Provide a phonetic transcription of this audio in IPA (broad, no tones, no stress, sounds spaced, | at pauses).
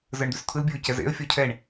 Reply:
z ə˞ ɳ d̪ ø s t̪ʰ ɯ l bʲ ə˞ ʊ̯ c ɛ z ḛ ə̯ fʲ ɔ cʰ ɛ ɳ